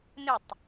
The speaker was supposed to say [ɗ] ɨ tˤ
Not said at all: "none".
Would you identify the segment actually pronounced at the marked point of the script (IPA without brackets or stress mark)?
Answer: n